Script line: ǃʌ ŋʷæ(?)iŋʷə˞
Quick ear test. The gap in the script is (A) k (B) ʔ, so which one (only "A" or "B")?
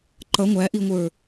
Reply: B